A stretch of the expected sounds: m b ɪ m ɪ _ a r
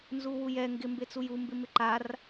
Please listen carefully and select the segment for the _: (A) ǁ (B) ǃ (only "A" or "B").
B